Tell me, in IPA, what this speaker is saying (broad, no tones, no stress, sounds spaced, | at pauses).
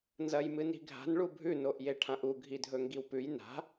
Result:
n z ɐ j m ɨ n i̤ ɡʱ a̤ n ɭ u bʱ ʉ n o ʔ j e ʈʰ ã ʔ u ɡʱ i dʱ ɵ ŋ ɡ i w p ʉ j n a̤